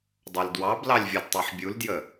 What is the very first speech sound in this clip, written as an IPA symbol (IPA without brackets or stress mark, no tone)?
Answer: dˤ